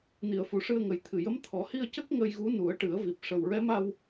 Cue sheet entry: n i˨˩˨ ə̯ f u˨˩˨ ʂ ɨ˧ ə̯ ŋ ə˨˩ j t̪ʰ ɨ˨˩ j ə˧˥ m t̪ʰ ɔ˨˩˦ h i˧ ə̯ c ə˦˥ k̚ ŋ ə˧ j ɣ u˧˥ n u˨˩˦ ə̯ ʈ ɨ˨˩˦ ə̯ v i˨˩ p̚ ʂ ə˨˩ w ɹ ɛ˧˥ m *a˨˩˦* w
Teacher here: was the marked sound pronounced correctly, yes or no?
no